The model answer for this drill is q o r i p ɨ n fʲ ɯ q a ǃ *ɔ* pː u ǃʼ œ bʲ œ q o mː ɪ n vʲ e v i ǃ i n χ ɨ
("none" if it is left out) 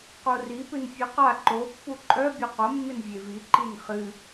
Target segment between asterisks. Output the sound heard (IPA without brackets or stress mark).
o